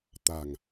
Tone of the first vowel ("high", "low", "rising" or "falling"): low